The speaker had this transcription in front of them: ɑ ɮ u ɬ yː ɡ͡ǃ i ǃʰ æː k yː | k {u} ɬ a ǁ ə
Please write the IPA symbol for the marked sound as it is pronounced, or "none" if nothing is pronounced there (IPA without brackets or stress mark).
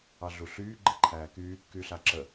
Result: y